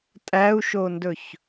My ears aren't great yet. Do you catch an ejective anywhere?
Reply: yes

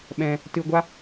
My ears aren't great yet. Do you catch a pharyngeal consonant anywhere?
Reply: no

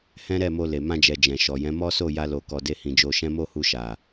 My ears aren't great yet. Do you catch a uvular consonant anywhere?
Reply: no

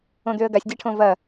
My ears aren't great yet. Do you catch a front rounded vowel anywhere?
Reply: yes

